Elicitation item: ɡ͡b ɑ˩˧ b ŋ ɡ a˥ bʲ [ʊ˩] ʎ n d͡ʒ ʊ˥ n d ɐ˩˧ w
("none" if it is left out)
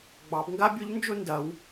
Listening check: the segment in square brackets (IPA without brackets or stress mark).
ʊ˧˥